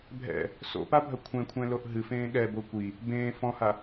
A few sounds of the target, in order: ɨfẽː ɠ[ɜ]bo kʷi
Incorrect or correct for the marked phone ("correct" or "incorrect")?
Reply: incorrect